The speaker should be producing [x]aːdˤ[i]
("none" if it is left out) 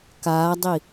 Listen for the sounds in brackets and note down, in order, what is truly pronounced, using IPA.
k, i

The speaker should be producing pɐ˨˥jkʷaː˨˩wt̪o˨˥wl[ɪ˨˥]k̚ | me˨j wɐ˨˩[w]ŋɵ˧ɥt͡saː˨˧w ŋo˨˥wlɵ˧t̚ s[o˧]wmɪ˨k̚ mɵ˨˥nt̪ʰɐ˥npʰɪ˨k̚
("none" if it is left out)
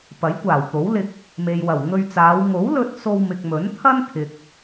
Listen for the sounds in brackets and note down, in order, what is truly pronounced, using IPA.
ɪ˧, w, o˧

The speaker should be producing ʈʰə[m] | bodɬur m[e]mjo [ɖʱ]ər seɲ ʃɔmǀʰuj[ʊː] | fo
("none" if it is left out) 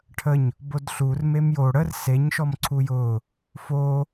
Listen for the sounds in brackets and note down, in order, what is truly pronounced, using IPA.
ɲ, e, ɽ, ʊː

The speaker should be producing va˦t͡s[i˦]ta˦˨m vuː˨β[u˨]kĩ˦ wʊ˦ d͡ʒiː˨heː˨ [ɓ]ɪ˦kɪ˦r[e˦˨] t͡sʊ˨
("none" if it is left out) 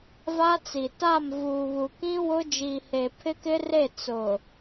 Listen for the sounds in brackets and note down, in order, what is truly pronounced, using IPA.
i˨, u˨, pʰ, e˦˨

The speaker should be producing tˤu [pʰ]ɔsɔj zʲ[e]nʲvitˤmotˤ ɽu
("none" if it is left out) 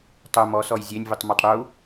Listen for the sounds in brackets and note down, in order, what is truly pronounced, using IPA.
m, e

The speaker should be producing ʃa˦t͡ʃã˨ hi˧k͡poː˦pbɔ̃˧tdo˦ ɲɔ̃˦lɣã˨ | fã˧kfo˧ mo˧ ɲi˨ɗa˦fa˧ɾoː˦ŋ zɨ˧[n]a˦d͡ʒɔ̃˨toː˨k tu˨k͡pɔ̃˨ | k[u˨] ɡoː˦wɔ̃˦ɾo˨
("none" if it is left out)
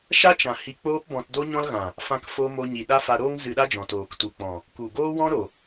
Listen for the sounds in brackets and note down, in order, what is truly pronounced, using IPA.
ɗ, u˨

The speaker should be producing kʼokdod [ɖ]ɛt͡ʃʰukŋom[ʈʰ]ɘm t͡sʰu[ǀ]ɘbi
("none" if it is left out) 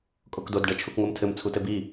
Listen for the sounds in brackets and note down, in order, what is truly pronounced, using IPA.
ɖ, tʰ, t

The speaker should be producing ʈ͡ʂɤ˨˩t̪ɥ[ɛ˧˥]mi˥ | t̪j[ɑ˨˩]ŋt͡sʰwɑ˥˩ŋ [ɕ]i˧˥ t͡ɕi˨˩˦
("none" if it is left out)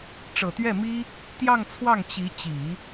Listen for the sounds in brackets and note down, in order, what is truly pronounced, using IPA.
ɛ˥˩, ɑ˥˧, t͡ɕ

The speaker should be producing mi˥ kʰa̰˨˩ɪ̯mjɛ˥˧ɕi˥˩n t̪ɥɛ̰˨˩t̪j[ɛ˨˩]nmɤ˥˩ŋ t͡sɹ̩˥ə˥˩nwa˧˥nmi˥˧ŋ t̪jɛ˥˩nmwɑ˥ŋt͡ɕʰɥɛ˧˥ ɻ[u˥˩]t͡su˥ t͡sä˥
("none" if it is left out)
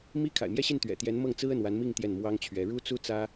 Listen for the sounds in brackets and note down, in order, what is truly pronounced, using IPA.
ɛ˧˥, u˥

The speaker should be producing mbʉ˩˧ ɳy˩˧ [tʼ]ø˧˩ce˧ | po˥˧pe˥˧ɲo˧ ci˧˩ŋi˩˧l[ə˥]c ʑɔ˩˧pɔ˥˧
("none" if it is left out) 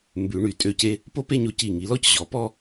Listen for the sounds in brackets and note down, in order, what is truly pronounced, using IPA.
tʼ, ɔ˥

